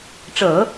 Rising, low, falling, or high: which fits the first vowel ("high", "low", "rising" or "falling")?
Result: low